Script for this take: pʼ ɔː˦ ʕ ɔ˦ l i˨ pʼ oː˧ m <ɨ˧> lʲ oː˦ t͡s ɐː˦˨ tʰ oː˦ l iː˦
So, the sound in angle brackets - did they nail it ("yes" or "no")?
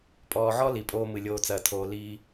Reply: yes